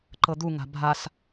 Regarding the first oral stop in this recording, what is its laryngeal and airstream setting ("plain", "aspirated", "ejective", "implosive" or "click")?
click